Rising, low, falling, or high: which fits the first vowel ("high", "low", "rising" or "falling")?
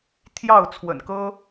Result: falling